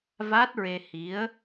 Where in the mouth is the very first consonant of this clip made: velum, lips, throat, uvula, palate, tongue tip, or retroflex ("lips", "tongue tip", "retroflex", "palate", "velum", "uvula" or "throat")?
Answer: lips